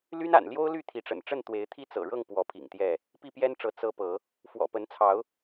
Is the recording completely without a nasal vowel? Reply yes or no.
yes